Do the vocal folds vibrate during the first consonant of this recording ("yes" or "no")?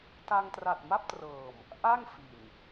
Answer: no